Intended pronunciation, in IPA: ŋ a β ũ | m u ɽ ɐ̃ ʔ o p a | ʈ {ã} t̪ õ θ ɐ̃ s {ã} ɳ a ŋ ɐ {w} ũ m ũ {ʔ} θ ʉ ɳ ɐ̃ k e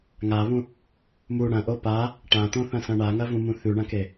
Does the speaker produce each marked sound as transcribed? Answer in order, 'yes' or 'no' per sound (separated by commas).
yes, no, no, no